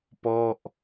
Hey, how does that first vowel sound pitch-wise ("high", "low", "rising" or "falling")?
falling